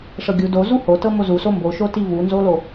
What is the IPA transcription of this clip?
ʂɤɡʲu do zuhotɤ mozuso mboʃoti vunzolo

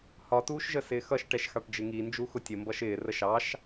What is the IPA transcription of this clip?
hɒtuːʃʒə sɪːxʌʃʈɛʃ xɑʈd͡ʒɪŋi nd͡ʒuxʊtʲəmbʌʃ ɪːrəʃ ɑʃ

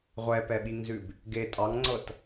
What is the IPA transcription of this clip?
ʁʷɛpɛɓiŋzʉb | ɡe tʼɑŋŋ͡ǀɤt

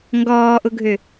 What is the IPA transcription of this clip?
ŋɡɔːʔʊɡʱø

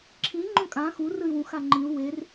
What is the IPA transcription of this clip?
ǁʰĩ ŋ͡ǃõkʼã xu rɯy̯wũx aŋ͡ǃĩu̯ wer

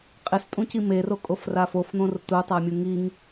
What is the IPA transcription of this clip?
qʼɪstʼũci merokʼofra fofn̪õr tutˤamʲu ŋiŋ

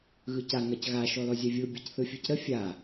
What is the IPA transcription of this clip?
ɣɯca ŋacɣa ʃɔlɔzʲœvʲɯ bʲɯcθɯfʲɯcɾə fʲa

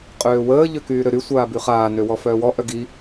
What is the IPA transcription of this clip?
qʼøːwəː ʎøkyːɾøɾy sʷaːbyχaː nøwɔfœːwɔ ʔœɡi

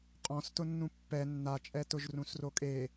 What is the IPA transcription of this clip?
qʼɔ̃stʊnːũ pːɛ nːat͡ʃʼɛ tʊʒrũsrokʼe

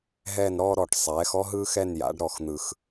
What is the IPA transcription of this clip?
ɦɛː˦˨nɾɔː˦ ɾɔ˨˩ʈ sˤɛː˩˧xɔ˦ ɦɯː˦xɛ˦˨n ja̰˩˧ɖ ɾɔ˨˩xn̪ɯ˨˩x

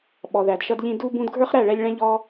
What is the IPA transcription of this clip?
ɓɔ˨ðæ˨dʃʌ˧dʎĩ˧ du˧ bũ˧dɡʱə˞˦χɾæ˦˨ɭɛ˧lʲ ɭɛ̃˧ ʎɔ˧

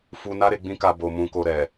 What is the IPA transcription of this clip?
fu˧na˦ ɾe˧ɡ͡bĩ˦ka˧ bo˧ mũ˧ko˧ ɾɛ˨

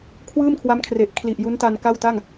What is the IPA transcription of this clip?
kʰwɯː˥˩mkʰwa˦˥mkʰre˨˩ʔ kʰli˨˩ʔ ju˦˥n ta˧nka˥˩wta˥˩ŋ

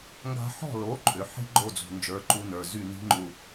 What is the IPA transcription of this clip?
ŋɡa̤˧ħɔ̤˥˩ lo˩˥ǃʼʏ˩ ħi̤˥ ɡ͡ǃo˥˩d͡zṳ˩nd͡ʒə˞˩˥ ǃu˧nə˞˩ zy˥˩ ni̤˥ŋ͡ǃu˧

